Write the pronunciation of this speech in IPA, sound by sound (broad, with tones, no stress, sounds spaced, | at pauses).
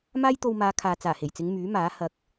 m aː˥ j t̪ o˧ w m aː˨˧ kʰ aː˨ t͡s aː˨˩ h e˨˩ j t͡s ɪ˨˧ ŋ m yː˨˥ m aː˨˥ h ɐ˨ k̚